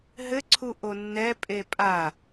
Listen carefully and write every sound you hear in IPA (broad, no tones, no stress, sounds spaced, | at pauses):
ɦ ɘ ǀʰ u ʔ o nː ɛ pʼ e pʼ a